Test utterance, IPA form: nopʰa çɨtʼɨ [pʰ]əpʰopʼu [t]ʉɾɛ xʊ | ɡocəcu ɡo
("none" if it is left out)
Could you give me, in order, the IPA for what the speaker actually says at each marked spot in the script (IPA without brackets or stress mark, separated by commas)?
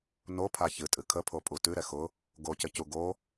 kʰ, t